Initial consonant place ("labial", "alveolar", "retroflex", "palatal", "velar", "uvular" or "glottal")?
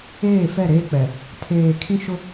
labial